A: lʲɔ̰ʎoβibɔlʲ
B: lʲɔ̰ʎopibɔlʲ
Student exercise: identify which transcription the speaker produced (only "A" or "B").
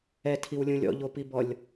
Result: B